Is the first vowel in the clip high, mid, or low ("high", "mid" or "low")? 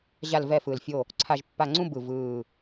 low